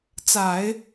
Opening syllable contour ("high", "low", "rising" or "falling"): low